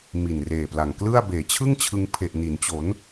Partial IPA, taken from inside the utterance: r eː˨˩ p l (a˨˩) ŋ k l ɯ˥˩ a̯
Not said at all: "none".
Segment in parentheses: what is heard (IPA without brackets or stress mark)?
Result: a˨˩